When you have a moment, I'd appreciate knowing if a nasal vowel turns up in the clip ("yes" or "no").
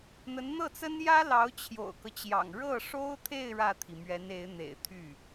no